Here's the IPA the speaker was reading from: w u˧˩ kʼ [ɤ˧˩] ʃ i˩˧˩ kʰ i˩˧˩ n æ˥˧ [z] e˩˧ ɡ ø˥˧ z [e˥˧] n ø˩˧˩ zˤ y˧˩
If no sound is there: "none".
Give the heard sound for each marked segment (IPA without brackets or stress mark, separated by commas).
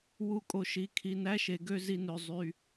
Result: o˧˩, ʃ, i˥˧